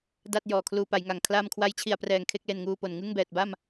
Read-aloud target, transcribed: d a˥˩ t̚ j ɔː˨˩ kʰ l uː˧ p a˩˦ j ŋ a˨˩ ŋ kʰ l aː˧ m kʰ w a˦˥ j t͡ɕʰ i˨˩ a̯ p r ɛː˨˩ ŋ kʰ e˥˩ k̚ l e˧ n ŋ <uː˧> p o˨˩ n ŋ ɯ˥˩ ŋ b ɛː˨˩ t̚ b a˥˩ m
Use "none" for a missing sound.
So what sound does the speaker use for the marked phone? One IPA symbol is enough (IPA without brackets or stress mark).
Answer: uː˧